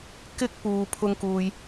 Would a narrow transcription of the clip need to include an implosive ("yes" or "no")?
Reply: no